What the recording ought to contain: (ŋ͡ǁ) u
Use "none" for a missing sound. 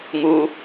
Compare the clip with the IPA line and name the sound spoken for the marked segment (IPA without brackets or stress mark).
ŋ